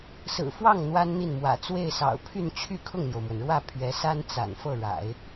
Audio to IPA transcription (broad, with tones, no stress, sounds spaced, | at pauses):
s ɹ̩˨˩ f w ɑ˥˩ ŋ n̪ w a˥ n n̪ i˥˩ n m w ä̰˨˩ t͡s w e˥˩ ɪ̯ s ɑ̰˨˩ ʊ̯ pʰ y˥˧ n t͡ɕʰ y˥˧ kʰ ʊ˥˩ ŋ n̪ j o˩ ʊ̯ m w ə˩ n ɻ w ä˥˩ pʰ ɥ ɛ˧˥ s a˥ n t͡s a̰˨˩ n f ɤ˥˩ ɻ a̰˨˩˦ ɪ̯